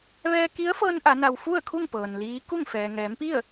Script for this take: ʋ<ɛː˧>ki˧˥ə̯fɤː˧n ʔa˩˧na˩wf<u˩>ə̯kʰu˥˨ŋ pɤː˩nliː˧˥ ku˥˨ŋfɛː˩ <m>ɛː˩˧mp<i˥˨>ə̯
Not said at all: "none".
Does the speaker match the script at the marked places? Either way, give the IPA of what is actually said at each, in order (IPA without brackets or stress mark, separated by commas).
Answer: ɛː˧, u˥˨, ŋ, i˥˨